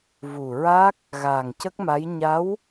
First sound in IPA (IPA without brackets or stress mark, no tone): v